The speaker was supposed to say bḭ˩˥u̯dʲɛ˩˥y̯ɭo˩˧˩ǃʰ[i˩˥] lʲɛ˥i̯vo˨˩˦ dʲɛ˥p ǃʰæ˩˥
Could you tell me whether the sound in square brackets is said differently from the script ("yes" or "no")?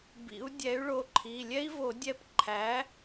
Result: yes